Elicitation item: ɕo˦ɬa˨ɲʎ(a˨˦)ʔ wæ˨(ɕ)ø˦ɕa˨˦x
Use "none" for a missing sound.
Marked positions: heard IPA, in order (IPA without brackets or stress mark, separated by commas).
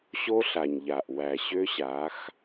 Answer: a˨, ɕ